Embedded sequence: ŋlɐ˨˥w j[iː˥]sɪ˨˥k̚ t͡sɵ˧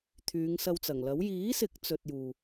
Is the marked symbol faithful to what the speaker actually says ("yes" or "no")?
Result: no